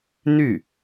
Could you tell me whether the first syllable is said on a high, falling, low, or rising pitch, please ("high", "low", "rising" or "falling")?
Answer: falling